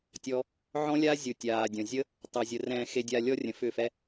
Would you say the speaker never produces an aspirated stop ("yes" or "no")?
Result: yes